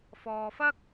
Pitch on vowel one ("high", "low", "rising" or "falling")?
low